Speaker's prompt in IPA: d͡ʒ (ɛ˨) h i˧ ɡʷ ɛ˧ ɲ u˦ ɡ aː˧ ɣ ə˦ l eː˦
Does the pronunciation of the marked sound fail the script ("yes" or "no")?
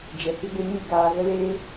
no